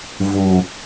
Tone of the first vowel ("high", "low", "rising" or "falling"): low